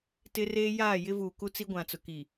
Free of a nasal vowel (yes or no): no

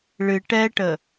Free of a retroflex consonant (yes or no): no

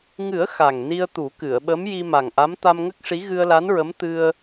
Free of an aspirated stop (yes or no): yes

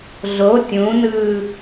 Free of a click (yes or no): yes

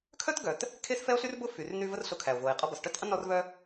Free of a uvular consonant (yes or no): no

